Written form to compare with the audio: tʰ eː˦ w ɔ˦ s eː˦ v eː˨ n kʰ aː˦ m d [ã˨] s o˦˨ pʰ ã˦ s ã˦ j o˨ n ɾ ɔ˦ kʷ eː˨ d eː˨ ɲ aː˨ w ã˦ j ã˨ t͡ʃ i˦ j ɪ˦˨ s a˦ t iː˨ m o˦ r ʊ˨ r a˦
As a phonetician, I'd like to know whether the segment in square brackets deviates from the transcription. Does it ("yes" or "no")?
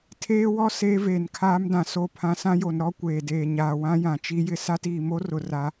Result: no